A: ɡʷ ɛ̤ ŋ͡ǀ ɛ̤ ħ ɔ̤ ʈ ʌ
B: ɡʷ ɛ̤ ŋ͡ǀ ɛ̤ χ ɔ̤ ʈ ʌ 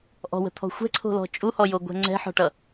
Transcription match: A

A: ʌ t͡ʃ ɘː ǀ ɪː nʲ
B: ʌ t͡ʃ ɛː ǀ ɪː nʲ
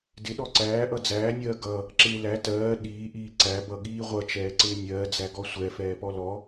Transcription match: B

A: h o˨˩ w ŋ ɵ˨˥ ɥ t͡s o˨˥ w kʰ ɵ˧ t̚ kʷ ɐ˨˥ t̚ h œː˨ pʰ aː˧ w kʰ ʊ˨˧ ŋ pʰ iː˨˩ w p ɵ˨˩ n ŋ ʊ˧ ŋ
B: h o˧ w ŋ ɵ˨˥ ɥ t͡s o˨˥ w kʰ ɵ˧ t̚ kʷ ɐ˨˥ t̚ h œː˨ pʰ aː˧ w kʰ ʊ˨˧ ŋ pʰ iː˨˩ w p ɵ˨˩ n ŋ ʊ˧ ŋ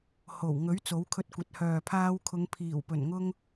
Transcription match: A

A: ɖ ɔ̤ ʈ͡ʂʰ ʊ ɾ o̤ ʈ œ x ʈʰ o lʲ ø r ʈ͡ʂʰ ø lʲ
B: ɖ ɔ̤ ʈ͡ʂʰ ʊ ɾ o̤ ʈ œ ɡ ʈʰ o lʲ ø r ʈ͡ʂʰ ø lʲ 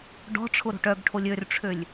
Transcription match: B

